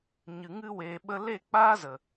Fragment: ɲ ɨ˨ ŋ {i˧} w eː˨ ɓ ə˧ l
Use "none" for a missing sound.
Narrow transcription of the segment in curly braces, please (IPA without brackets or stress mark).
ɨ˧